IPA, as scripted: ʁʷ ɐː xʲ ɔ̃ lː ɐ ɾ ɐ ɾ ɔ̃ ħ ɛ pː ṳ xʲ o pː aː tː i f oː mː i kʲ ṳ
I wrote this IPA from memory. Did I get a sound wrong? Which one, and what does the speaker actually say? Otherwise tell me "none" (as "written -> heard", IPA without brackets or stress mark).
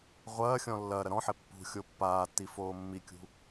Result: none